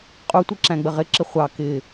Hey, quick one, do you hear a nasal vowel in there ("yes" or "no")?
yes